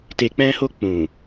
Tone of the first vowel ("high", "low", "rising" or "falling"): low